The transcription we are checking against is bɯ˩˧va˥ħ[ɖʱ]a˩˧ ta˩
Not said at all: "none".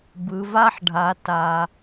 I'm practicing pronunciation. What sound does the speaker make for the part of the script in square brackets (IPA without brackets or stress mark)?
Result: ɖʱ